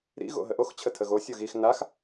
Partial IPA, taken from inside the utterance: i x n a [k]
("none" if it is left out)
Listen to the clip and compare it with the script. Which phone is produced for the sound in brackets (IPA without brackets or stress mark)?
x